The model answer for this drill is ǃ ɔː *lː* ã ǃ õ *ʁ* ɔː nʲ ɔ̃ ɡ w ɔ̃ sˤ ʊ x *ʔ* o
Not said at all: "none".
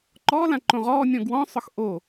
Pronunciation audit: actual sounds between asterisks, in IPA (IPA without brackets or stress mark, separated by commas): l, ʁ, ʔ